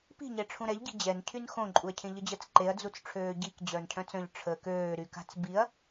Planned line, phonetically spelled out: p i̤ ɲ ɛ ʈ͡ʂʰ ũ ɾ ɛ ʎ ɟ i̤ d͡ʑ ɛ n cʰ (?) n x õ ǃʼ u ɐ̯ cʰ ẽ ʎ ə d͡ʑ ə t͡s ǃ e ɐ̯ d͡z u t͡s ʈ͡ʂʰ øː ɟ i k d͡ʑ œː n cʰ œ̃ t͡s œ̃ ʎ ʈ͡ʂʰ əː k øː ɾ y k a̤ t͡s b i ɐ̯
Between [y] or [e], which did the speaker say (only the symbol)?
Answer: y